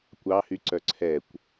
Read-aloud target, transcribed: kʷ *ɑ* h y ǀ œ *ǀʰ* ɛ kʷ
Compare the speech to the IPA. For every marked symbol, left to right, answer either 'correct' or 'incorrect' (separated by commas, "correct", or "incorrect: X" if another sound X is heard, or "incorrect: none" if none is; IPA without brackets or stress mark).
correct, correct